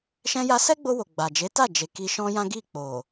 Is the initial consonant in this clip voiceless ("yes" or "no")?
yes